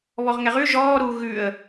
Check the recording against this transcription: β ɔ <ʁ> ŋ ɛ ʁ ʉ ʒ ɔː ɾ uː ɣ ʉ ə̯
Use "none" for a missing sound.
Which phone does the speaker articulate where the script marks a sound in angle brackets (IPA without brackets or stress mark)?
ʁ